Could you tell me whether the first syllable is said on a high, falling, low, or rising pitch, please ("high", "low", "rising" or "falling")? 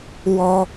high